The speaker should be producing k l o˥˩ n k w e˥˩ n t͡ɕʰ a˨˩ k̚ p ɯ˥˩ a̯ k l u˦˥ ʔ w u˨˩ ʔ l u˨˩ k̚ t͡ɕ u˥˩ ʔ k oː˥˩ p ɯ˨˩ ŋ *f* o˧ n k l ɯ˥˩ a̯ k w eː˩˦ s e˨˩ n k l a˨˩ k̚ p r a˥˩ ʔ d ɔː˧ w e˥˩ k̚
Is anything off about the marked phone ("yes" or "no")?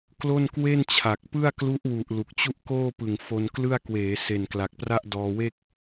no